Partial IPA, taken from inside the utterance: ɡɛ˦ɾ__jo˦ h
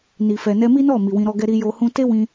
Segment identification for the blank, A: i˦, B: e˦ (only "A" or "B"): A